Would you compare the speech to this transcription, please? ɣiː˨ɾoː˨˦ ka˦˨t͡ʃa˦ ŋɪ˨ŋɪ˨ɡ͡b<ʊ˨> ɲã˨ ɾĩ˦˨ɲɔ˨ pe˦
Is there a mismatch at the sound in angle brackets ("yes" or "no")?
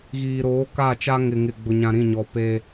no